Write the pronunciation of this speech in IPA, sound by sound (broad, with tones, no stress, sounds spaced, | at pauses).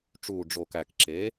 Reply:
ʈ͡ʂ uː˨˩ ɖ͡ʐ o˨˩ k æ˨˩ k ǁ e˩˥